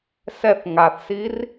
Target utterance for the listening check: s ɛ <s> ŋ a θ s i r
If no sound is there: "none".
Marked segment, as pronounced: θ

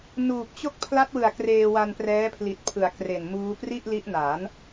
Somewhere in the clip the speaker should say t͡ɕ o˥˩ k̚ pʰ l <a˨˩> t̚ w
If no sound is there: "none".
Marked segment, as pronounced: a˦˥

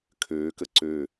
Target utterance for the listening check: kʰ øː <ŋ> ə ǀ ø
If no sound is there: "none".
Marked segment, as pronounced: k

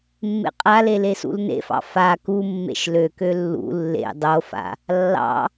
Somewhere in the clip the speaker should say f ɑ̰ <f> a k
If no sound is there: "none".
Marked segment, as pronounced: f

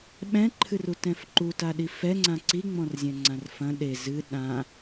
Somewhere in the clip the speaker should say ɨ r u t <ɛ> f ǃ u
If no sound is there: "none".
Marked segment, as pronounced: ɛ̃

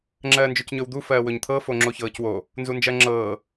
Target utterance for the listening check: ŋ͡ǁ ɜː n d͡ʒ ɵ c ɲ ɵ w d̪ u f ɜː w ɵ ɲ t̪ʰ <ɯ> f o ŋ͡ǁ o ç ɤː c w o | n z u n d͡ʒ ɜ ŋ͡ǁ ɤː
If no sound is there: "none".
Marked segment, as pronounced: ɤ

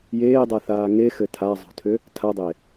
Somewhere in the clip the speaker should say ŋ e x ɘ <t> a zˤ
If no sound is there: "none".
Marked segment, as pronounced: tʰ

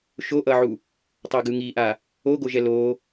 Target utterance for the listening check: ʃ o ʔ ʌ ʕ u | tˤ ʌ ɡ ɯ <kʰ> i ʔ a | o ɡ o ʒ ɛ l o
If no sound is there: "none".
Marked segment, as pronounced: ŋ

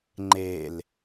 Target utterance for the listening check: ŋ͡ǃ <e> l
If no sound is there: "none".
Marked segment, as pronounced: e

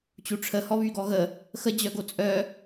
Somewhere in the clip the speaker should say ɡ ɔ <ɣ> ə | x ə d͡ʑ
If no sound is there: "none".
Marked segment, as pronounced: ɣ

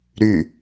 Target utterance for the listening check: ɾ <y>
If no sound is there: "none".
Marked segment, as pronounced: y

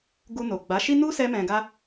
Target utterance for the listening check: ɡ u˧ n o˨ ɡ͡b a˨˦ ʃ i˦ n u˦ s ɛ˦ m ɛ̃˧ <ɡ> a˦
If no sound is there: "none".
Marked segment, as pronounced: ɡ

